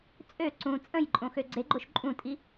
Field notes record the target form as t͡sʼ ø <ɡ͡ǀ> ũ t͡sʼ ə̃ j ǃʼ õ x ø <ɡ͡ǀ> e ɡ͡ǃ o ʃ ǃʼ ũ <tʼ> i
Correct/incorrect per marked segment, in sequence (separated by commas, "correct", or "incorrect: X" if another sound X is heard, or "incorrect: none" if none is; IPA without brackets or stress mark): incorrect: ǀ, correct, correct